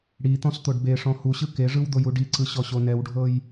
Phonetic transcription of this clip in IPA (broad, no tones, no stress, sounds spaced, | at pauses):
ɽ i t̪ ɔ̃ s t̪ o ɖ b e ʂ ɔ̃ h u ɕ ɯ k e ʐ ɯ w d̪ o j u ɖ i ǀ ɯ ɕ ɔ ɕ o n ɛ w ɖʱ ɤ j